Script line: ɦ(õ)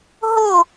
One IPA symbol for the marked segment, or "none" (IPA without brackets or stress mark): o